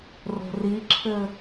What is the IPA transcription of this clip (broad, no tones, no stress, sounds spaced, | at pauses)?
r o̤ r i ǁʰ ɘ